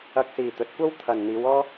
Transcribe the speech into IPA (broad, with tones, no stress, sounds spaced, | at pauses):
ɐ˧ k̚ s iː˨ t̪ ɵ˨˥ t̚ kʷ ɐ˥ w t̪ʰ ɐ˨ n n̪ iː˨˧ w ɔː˥